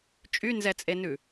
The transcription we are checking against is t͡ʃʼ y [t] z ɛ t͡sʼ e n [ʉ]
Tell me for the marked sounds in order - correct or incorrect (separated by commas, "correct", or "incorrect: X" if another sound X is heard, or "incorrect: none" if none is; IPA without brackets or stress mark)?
incorrect: n, correct